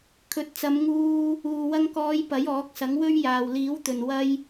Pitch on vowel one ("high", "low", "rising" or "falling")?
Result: rising